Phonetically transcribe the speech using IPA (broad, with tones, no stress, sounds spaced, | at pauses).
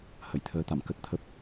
h ə˧˩ j t̪ʰ əː˨˦ t̪ a̰˧˨ m k ə˦˥ t̚ t̪ʰ ə˦˥ p̚